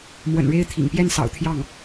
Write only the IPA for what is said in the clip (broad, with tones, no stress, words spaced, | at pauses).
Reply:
mwə̰˨˩nɻe˥˩ɪ̯ t̪ʰḭ˨˩ŋpjɛ˥˩nsɑ̰˨˩ʊ̯ t̪ʰjɑ˥˩ŋ